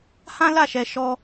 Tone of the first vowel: high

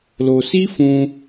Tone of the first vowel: low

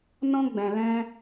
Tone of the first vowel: high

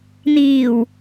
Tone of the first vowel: low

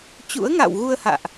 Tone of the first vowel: rising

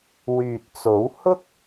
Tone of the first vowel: low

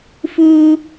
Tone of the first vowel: high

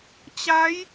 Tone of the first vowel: rising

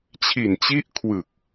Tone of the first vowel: low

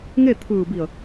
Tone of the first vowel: falling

